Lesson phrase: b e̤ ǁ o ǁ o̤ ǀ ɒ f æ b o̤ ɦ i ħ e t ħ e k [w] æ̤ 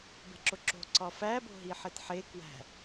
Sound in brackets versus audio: correct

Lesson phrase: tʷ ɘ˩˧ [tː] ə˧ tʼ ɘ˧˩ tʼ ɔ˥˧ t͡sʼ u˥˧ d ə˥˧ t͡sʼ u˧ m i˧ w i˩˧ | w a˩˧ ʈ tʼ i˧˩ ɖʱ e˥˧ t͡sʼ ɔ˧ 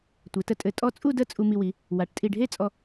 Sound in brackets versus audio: incorrect: t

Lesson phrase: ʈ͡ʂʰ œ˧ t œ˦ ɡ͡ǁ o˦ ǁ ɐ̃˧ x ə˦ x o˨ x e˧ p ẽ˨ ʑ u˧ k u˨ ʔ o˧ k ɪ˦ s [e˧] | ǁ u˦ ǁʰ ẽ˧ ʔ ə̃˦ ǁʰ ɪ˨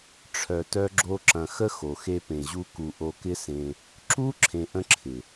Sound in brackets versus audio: incorrect: ẽ˧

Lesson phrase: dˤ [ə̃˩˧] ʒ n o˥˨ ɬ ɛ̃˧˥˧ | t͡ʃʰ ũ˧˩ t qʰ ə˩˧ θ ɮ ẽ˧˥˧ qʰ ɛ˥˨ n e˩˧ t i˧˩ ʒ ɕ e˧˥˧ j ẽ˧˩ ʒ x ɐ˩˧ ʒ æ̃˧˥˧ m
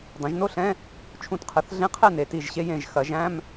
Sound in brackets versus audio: incorrect: ɐ̃˩˧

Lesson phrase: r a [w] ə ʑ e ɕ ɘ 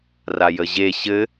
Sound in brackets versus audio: incorrect: j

